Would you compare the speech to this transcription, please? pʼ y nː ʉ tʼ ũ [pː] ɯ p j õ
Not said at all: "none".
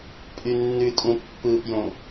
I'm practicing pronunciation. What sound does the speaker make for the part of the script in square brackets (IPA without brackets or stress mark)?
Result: pː